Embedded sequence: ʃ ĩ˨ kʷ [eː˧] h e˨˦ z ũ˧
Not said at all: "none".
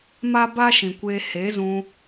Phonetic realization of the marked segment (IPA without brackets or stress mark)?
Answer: eː˧